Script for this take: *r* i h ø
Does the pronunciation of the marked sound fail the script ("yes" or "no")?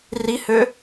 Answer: no